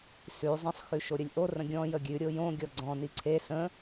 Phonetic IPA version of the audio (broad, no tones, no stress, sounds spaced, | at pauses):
s ʉ zˤ ə̃ sˤ x ʉ ʃ o ɾʲ ə lʲ ʔ o r ə̃ ɡʲ ɔ̃ j ə ɡʲ ʉ ɾʲ o j õ ɡʲ ɔ ɡ͡ǀ ɔ̃ n i ǀʰ e s ə̃